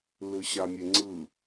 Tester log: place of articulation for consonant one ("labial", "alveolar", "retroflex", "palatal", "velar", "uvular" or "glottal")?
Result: alveolar